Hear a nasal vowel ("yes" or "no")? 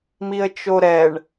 no